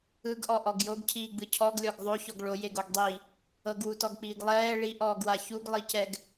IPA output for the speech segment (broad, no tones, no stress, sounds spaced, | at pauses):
ɯ ɡ ʔ ɔ ʔ ɔ ɡ j o ɡ cʰ iː ɡ͡b ɯ cʰ ɔ ɡ lʲ ɔ ɡ ðˤ o ç ɔ ɡ ɭ o j e ɡ o ɡ dˤ i | ɤ ɡ w u t ɔ ɡ k͡p iː ɡ lˠ ɛː ɭ i ʔ ɔː ɡ w a ç u ɡ lˠ i c ɛ ɡ